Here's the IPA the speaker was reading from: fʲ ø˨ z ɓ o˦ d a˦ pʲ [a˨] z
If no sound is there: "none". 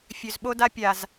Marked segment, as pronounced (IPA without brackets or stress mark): a˨